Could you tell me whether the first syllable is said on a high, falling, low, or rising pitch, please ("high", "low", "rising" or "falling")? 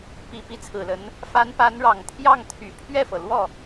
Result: low